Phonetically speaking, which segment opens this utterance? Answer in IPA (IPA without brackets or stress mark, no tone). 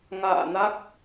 ŋ